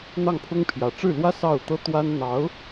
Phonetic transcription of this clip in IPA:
n̪ ɑ˥˩ ŋ pʰ ʊ˥ ŋ pʰ j ä˨˩ ʈ͡ʂ ɻ̩˥˩ l w ä˥ s ɑ˥˩ ʊ̯ t̪ ɤ˥ t̪ w a˥ n n̪ ɑ˧˥ ʊ̯

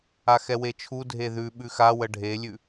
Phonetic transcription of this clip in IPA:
a x ɛ w e t͡ʃʰ u dʱ e ð ʉ ɓ ʉ x a w ə ɖʱ e lʲ ʉ

